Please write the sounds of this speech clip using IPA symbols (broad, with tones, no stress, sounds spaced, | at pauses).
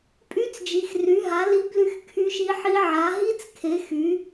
pʼ y˦˥ t͡s d͡ʒ i˨˦ x r y˨˦ ɦ a˨˦ l i˦˥ b l y˦˥ x kʰ y˦˥ ʃ i˦˥ ħ i˦˥ ʕ a˨˦ ɦ i˦˥ t͡s kʰ e˨˦ x y˨˦